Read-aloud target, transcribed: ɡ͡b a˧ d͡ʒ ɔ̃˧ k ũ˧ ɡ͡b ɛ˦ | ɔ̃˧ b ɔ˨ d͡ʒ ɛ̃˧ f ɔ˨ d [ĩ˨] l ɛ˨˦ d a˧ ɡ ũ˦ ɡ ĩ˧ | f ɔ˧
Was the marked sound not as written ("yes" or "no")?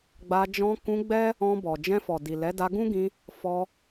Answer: yes